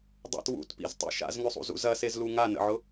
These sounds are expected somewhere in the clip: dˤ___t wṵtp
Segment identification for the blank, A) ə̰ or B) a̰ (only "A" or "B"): B